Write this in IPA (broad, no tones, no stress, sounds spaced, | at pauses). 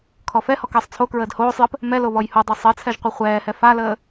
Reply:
kʰ ɔ f ɛ h ɔ k əː sˤ t͡sʰ o k ɹ əː d h oː sˤ j ə p | m ɛ l o β ɔ j h o dˤ i sˤ ɘ t͡sʰ ɛ ʒ qʷ ɘ χʷ ɛː h ɛ f a l əː